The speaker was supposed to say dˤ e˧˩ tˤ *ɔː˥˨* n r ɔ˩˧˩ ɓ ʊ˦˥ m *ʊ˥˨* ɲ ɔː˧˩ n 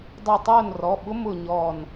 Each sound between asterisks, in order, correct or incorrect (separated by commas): incorrect, correct